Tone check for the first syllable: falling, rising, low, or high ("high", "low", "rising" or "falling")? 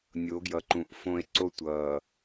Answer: rising